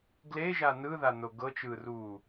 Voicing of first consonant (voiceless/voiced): voiced